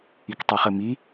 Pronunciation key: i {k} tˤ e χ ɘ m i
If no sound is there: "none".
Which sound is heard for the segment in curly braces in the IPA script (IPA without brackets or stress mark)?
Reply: k